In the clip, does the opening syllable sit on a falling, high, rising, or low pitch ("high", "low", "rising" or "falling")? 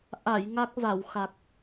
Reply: low